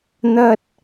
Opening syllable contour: high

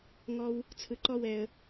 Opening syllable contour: high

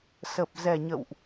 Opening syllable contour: low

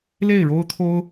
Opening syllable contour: falling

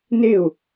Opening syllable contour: falling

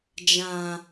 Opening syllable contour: low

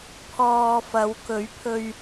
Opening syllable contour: low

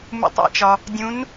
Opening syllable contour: low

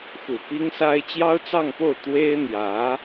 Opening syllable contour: low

